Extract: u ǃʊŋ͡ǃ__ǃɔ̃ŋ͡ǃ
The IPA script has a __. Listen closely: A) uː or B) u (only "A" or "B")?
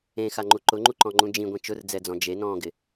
B